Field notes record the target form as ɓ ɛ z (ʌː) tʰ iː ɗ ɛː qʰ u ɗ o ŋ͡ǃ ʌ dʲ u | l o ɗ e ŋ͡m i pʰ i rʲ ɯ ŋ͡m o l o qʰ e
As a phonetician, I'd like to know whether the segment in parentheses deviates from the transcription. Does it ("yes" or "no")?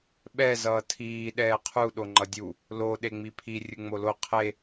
no